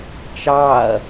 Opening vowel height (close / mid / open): open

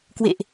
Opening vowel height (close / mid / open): mid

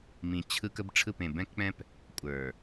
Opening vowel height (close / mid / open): close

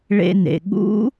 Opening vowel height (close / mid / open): mid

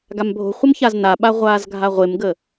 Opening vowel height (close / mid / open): open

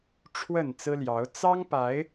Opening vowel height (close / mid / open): mid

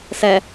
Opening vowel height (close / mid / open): mid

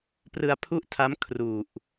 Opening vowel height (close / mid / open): close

